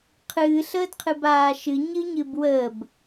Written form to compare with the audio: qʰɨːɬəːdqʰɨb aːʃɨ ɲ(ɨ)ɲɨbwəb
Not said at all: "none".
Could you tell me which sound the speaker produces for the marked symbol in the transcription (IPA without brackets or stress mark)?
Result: ɨ